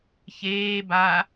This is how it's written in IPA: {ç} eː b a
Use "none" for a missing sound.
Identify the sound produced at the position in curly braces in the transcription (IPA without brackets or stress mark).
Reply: ç